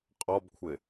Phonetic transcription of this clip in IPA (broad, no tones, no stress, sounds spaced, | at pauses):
qʼ ɔ b kʷʰ ɪ